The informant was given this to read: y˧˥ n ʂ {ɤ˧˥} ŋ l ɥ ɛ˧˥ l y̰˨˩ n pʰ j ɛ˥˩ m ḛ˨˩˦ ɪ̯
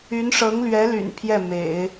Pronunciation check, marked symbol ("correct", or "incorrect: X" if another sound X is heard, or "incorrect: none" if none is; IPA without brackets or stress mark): correct